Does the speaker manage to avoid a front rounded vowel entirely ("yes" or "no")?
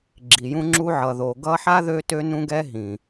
no